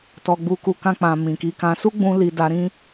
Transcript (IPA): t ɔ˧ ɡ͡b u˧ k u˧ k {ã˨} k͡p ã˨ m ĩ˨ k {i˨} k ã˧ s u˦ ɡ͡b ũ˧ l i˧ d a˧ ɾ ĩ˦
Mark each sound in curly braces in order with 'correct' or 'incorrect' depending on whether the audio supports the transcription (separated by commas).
incorrect, incorrect